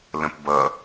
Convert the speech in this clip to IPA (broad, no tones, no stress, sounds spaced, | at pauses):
l ə̃ p b ʌ